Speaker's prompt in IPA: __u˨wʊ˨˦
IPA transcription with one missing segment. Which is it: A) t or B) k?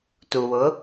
A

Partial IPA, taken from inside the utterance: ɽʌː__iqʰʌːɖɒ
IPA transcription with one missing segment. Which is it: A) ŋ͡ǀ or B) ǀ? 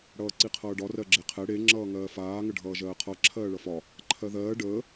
B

